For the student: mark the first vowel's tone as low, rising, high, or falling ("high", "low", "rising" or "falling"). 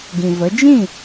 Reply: low